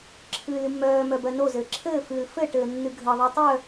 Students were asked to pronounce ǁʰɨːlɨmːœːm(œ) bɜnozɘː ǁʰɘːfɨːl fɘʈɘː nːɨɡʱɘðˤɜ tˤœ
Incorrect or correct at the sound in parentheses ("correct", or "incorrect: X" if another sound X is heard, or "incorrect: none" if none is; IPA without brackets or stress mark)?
correct